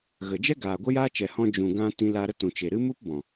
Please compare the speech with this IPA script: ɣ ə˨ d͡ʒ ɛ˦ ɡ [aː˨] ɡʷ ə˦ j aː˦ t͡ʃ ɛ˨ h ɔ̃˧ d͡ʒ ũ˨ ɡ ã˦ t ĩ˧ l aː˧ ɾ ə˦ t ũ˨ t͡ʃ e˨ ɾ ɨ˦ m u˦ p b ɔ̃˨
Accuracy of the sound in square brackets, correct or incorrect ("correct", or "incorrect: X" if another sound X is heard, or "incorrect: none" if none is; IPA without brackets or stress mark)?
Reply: correct